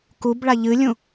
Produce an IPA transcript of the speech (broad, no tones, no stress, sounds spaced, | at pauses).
k u b ɭ a ʎ ɨ lʲ ũ